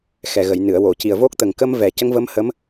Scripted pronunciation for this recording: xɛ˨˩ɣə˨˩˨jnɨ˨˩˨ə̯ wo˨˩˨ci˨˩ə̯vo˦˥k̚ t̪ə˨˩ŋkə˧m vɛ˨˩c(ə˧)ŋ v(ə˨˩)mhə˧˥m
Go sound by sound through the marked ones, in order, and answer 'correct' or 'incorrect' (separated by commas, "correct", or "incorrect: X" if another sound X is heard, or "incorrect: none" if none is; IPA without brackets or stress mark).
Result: correct, incorrect: ə˧˥